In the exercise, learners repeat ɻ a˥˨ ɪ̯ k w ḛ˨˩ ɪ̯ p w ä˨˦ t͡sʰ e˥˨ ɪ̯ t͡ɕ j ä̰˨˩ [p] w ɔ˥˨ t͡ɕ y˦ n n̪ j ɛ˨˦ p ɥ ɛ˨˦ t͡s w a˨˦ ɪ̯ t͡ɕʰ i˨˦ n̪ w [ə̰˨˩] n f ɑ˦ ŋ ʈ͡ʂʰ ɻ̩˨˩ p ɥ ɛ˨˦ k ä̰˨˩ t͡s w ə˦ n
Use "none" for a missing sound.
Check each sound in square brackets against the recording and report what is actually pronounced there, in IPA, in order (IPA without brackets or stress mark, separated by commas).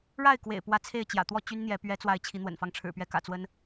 t̪, ə̰˨˩